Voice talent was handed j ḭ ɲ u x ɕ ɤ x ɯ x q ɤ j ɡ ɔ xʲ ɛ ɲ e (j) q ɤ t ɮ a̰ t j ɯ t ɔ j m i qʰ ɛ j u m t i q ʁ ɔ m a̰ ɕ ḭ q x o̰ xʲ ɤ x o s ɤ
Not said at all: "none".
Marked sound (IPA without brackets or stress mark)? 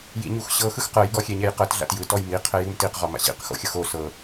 j